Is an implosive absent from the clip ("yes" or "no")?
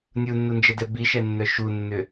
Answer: yes